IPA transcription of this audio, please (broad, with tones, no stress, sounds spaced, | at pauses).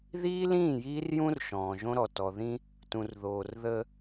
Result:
ð iː˦ l ĩː˦˨ j iː˦ r j ũ˦ r ʃ ɔ̃ː˨ ʒ õ˦ ɾ ɔ˨ t ɔ˨ ð ĩ˦ | t ũ˨ r ð oː˨ r ð ə˦